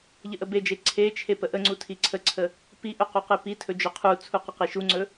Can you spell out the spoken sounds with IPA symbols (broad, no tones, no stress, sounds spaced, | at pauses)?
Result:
ʎ ə ʔ ə b e d͡ʒ e ǀʰ e t͡ʃʰ e p ə ʔ ə ŋ͡ǀ u tʰ i ǀʰ ə ǀʰ ə | p i ʔ ɵ q u q e p i tʰ ɵ d͡ʒ ɵ qʰ u t͡sʰ u q ə q i ʃ u ŋ͡ǀ ɵ